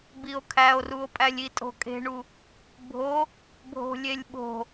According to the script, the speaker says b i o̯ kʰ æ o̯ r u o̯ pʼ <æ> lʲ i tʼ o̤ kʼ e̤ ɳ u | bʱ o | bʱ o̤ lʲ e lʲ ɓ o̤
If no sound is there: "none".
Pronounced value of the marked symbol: æ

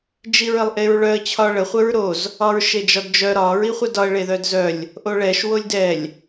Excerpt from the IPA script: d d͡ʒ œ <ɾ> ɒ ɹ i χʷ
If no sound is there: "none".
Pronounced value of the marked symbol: ɾ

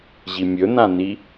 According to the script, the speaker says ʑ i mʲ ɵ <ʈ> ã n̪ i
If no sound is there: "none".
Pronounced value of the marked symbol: n̪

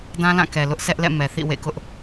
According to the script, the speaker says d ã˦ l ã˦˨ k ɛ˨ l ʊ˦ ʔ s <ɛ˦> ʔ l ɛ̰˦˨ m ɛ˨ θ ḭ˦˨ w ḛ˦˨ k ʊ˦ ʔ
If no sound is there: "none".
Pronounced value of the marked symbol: ɛ˦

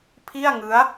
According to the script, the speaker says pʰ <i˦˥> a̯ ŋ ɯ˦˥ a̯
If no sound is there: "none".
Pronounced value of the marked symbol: i˥˩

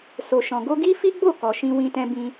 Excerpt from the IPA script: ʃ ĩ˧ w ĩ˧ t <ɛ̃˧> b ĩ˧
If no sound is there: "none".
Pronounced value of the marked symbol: ɛ̃˧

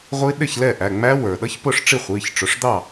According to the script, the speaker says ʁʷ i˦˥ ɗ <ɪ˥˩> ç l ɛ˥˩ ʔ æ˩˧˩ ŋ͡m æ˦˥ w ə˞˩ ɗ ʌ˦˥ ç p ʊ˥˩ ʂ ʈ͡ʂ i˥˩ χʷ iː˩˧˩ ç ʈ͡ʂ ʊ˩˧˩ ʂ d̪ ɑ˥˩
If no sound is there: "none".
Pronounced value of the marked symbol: ɪ˥˩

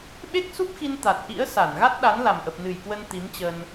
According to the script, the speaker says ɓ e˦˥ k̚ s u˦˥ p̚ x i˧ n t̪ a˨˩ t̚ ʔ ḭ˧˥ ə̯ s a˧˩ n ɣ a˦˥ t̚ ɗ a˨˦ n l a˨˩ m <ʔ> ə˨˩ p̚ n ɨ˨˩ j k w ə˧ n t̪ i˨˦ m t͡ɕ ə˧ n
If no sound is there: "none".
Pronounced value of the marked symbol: ʔ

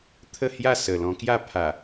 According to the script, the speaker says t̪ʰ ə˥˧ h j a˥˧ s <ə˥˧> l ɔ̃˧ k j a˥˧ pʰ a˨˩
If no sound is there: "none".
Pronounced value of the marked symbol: ə˨˩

